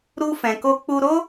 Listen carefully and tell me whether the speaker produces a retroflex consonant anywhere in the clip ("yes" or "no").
no